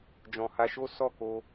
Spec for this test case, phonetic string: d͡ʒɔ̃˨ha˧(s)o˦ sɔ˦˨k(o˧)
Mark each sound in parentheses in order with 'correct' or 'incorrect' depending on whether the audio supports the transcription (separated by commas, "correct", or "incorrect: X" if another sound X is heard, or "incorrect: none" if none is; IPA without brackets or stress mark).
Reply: incorrect: ʃ, correct